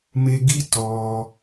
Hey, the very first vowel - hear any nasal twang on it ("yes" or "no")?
no